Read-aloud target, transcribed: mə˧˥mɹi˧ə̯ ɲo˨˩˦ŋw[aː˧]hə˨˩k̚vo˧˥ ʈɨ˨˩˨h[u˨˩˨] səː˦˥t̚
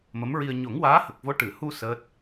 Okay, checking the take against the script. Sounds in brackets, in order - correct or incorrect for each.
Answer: incorrect: aː˧˥, incorrect: u˧

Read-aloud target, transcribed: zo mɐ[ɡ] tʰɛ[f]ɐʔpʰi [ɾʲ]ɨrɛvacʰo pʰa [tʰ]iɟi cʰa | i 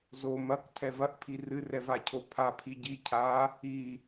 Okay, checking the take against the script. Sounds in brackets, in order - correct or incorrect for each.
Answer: incorrect: k, incorrect: v, incorrect: r, incorrect: pʰ

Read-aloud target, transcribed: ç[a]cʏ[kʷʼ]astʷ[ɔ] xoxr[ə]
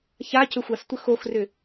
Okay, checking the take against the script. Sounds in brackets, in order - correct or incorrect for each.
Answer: correct, incorrect: xʷ, incorrect: ə, incorrect: ʏ

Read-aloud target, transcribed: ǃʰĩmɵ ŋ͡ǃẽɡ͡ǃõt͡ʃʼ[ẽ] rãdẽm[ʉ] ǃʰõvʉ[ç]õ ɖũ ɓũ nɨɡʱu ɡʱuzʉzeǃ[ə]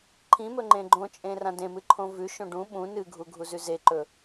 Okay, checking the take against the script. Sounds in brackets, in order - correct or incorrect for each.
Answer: correct, incorrect: ɨ, incorrect: ʃ, incorrect: ɵ

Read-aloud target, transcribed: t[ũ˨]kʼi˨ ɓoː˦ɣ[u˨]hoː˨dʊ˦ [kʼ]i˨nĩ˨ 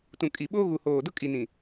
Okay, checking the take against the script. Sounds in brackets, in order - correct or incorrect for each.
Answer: correct, correct, correct

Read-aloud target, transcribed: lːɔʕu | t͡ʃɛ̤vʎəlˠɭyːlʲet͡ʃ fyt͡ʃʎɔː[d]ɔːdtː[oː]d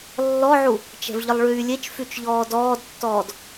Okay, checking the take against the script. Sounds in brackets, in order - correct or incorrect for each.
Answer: correct, incorrect: ɔː

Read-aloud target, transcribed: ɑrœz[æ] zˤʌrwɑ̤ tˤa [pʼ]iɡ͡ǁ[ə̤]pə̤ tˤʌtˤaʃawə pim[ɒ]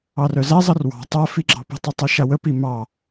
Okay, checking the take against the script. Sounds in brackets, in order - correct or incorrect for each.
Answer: correct, incorrect: f, incorrect: ɑ̤, incorrect: ɑ

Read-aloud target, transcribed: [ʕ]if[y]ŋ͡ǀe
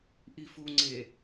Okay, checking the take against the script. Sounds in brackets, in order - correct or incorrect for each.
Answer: incorrect: ʔ, incorrect: u

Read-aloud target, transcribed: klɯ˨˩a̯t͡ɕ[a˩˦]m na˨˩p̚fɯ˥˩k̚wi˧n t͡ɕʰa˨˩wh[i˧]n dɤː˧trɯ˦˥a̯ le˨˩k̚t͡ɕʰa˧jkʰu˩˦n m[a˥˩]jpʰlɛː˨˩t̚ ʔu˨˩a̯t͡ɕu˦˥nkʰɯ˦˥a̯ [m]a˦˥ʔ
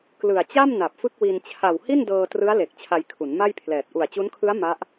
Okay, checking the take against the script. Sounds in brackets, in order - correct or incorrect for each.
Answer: incorrect: a˥˩, incorrect: i˥˩, correct, correct

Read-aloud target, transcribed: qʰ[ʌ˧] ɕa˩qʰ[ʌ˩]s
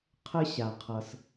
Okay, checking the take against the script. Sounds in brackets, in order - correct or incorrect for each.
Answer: incorrect: ə˧, correct

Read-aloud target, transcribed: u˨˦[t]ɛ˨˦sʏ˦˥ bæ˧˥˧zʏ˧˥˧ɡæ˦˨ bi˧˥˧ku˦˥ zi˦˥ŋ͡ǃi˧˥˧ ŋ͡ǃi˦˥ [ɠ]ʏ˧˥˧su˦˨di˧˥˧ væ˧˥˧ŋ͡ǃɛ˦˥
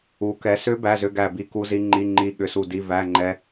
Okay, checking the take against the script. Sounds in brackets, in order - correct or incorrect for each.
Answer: incorrect: k, correct

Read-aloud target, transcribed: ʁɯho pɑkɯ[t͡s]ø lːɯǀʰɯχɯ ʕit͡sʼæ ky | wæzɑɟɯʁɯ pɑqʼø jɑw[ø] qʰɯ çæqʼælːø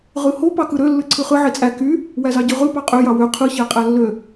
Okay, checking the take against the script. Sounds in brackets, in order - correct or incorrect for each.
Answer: incorrect: ɾ, correct

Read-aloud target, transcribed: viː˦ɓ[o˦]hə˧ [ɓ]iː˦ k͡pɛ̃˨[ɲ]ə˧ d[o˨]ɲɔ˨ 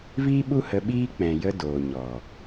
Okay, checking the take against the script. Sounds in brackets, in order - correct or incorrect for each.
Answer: incorrect: u˦, correct, incorrect: j, incorrect: oː˨

